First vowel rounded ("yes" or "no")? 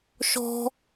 yes